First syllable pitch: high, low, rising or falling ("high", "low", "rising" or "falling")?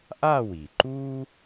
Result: falling